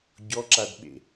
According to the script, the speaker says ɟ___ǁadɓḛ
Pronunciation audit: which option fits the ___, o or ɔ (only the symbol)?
ɔ